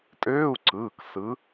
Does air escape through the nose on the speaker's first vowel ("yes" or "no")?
no